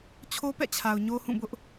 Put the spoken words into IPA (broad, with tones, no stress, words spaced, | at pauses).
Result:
t͡ɕʰo˦pɛ̰˦˨t͡ɕʰa˨ʊ̯ ɲo˦hũ˦˨bʊ˦ʔ